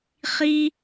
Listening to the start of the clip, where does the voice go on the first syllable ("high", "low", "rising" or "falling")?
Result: high